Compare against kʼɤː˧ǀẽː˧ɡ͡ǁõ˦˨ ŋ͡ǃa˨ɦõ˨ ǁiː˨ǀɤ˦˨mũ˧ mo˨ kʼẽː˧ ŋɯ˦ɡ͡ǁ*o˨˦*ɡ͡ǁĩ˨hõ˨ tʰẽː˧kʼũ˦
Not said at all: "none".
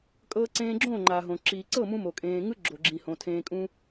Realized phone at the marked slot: o˨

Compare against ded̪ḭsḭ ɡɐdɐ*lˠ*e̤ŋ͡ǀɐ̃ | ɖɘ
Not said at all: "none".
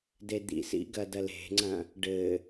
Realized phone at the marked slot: l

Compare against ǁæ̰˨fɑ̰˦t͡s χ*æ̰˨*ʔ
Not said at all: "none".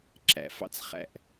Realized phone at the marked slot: æ̰˦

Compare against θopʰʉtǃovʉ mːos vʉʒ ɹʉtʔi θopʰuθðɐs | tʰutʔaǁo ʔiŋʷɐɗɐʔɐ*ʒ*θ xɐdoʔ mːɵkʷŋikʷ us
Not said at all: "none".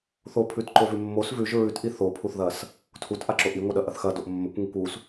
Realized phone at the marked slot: none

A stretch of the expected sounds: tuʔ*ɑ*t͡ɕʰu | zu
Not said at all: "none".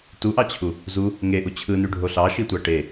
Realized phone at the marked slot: ɑ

